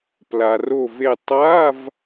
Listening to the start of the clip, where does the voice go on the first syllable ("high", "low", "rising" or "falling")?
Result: low